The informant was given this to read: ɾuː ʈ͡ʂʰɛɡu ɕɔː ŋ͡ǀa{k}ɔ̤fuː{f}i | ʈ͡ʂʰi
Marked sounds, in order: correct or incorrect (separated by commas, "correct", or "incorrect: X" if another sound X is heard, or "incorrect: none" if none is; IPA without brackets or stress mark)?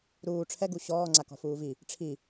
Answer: correct, incorrect: v